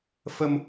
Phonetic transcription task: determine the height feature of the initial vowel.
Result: mid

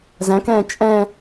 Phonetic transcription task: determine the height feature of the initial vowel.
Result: low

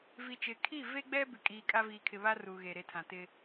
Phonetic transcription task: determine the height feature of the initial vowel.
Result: high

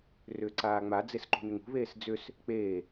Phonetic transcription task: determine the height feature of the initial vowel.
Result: high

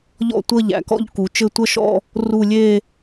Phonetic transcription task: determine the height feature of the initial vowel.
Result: mid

